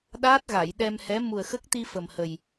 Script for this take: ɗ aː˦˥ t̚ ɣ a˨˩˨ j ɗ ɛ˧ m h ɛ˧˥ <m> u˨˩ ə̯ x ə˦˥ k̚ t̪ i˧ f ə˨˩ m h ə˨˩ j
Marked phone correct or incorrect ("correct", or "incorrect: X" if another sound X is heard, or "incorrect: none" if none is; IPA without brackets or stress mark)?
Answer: correct